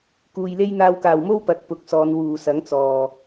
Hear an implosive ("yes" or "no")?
no